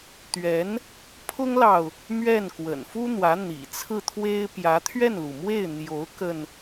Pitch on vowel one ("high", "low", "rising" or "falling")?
rising